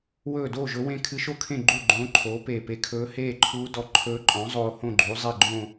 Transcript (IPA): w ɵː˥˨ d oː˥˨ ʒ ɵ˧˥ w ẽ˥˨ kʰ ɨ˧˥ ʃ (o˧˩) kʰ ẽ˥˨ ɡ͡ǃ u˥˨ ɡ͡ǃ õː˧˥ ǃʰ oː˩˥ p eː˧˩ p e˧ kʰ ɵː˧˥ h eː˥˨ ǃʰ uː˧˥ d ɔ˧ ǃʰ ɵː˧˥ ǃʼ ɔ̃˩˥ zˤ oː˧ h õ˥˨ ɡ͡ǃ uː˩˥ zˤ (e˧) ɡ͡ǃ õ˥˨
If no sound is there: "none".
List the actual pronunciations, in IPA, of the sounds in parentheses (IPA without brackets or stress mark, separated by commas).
o˥˨, e˥˨